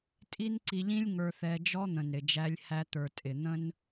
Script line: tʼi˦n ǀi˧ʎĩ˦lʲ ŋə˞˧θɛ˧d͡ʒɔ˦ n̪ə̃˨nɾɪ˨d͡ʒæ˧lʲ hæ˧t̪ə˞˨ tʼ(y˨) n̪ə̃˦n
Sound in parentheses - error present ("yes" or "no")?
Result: yes